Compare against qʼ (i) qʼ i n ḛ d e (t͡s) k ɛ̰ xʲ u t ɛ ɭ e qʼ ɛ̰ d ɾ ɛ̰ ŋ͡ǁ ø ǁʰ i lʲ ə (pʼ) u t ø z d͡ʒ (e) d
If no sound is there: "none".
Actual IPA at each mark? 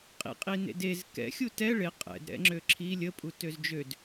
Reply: ḭ, z, pʼ, ø

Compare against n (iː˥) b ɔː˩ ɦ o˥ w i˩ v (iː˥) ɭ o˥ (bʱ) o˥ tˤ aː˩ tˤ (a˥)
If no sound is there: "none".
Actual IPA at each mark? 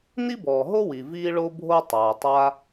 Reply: i˥, iː˥, bʱ, a˥

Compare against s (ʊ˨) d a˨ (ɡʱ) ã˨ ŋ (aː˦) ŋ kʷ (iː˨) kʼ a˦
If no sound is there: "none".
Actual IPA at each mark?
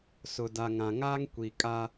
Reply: ʊ˨, ŋ, aː˦, i˨

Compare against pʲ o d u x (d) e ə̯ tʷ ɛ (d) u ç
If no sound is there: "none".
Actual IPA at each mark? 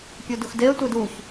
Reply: d, d

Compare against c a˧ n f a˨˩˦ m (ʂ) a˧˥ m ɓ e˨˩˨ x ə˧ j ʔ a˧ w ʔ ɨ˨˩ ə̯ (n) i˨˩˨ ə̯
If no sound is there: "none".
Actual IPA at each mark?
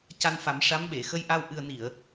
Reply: ʂ, n

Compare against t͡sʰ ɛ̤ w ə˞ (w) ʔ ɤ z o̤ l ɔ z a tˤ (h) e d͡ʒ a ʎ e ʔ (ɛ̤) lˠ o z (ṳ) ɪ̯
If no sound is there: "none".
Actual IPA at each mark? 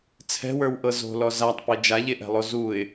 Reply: w, p, ɛ̤, u

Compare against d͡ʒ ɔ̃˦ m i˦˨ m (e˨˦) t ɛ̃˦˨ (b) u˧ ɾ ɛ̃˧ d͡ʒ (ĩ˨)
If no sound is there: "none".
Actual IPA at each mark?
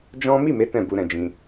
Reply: e˨˦, b, ĩ˧

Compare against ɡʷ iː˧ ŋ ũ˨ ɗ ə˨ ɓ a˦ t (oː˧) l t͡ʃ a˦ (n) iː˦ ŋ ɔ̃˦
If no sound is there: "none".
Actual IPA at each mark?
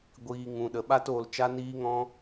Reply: oː˧, n

